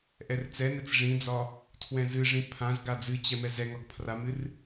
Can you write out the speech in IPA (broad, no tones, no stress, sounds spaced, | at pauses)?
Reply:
ʔ ɛ r t͡s ɛ n ɛ t͡s ʐ ĩ d͡z ɒ | tʰ w ɛ̃ z ɨ ʐ ĩ pʰ ã z ɡ a d͡z ɨ t͡ɕ ɛ m ɛ z ɛ ŋ ɒ ɡ pʰ r a m ɨ r